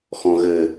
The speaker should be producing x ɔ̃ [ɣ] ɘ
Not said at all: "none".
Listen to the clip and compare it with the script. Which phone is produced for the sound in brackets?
ɣ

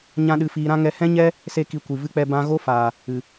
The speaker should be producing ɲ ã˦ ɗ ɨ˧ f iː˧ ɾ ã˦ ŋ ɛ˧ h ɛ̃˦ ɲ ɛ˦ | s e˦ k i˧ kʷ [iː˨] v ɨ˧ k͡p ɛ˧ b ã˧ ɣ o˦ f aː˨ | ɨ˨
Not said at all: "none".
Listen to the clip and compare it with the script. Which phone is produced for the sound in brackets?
i˨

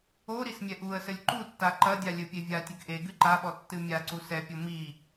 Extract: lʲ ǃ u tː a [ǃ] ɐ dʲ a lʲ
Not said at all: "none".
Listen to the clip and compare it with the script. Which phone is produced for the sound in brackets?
ǃ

